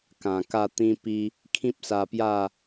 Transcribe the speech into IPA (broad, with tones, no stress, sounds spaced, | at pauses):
k ã˨˩ k a˥˧ t̪ ĩ˦ p i˦ | kʰ ĩ˦ p̚ s a˧ p j a˥˧